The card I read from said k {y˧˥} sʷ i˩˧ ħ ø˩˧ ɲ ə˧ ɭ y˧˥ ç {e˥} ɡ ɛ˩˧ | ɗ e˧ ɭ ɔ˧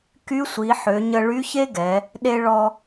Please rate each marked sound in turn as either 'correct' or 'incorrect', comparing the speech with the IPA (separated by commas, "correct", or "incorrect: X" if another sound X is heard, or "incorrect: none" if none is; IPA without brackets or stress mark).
correct, correct